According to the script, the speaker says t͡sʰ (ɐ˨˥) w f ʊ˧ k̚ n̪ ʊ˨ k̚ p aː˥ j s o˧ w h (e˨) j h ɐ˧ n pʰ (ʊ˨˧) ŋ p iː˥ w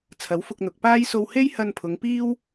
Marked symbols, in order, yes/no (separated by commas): yes, no, yes